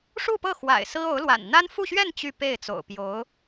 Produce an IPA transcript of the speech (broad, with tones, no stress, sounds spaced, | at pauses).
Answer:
ʂ u˥˧ p ɤ˥˩ x w a̰˨˩ ɪ̯ s ɹ̩˥ o˧˥ ʊ̯ l w a̰˨˩ n n̪ a˥ n f u˥˧ ɕ ɥ ɛ˥˧ n t͡ɕ y˥˧ p e˥˩ ɪ̯ t͡s o̰˨˩ ʊ̯ p j o˧˥ ʊ̯